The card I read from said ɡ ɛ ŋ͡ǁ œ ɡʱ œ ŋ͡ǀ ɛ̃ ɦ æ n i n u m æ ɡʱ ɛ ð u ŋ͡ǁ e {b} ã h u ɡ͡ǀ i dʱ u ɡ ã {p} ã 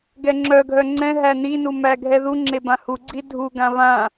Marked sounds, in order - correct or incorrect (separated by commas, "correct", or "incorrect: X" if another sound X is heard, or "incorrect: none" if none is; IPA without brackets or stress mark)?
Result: correct, incorrect: β